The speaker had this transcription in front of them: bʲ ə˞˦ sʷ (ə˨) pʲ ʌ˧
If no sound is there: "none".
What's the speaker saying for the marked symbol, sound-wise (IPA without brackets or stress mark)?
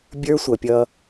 ʌ˨